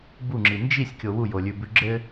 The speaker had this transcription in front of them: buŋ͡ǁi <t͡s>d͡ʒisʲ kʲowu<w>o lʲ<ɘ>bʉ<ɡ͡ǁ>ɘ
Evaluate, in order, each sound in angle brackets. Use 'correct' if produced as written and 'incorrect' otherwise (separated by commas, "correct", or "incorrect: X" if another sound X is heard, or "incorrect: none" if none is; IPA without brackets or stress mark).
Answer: incorrect: n, incorrect: j, incorrect: ʉ, correct